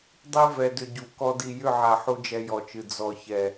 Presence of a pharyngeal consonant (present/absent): present